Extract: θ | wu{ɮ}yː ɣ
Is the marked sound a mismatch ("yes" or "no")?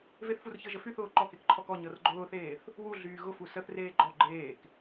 no